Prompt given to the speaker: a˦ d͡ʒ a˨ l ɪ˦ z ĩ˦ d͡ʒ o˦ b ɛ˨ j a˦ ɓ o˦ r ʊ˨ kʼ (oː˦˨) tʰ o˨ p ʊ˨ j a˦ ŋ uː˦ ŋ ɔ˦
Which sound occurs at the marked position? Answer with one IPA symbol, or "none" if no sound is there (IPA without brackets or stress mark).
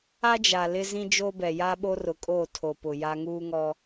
oː˦˨